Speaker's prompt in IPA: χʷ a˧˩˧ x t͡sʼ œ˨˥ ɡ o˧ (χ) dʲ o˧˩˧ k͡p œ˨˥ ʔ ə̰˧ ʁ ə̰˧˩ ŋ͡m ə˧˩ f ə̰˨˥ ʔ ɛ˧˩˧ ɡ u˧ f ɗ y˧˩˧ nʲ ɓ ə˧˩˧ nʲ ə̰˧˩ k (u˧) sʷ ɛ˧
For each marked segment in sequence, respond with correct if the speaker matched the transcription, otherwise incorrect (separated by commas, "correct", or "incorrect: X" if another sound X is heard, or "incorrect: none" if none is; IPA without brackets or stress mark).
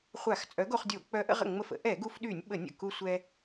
correct, correct